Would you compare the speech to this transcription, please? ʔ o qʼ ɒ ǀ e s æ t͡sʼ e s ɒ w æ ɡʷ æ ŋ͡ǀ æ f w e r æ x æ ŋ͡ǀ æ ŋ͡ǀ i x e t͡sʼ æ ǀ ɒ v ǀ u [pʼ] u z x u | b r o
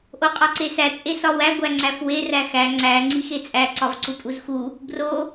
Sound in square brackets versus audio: correct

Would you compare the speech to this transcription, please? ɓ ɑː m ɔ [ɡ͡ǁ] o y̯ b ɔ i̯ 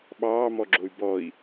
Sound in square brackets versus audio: correct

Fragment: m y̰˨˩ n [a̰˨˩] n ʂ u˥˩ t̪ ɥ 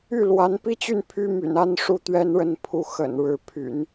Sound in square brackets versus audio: incorrect: a˥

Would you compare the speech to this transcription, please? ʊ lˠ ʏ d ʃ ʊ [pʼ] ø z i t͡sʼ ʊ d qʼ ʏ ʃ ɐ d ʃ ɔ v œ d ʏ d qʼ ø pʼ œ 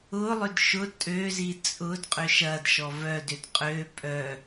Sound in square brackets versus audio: incorrect: tʼ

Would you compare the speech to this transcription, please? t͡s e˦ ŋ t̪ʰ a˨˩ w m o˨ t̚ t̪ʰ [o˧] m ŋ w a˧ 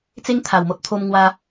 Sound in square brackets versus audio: correct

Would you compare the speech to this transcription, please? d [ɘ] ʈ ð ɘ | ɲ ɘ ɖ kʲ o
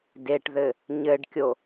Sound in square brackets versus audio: incorrect: e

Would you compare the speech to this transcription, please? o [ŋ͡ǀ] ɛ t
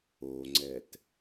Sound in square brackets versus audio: correct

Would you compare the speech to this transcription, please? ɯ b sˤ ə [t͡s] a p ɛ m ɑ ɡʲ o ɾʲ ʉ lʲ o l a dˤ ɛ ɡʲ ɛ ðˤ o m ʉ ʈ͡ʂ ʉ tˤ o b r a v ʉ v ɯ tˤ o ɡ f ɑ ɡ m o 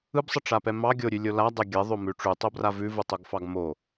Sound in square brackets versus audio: incorrect: ʈ͡ʂ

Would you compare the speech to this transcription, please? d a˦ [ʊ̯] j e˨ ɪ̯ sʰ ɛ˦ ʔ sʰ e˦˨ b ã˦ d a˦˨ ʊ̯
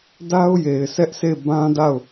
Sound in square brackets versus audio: correct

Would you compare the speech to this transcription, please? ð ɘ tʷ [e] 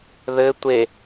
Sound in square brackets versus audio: correct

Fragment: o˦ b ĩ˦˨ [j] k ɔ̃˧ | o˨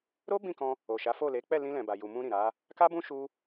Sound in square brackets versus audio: incorrect: none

